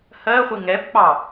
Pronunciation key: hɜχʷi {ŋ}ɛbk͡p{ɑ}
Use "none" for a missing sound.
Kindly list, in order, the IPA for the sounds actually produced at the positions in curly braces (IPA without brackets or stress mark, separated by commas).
ŋ, ɑ